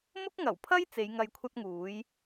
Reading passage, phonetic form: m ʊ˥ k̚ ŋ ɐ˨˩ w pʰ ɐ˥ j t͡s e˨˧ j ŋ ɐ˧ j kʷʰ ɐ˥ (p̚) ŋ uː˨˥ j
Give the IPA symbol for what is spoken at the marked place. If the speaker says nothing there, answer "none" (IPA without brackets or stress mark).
t̚